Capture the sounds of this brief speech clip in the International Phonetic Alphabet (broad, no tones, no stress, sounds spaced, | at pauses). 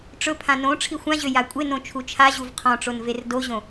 ʈ͡ʂ ɵ pʰ ã n õ ʈ͡ʂʰ i xʷ ã ʑ ø j a kʷʼ e n õ t͡ʃʰ u t͡ʃʰ a ʑ u v qʰ ɔ̃ ʈ͡ʂ o n v e r d o ʑ õ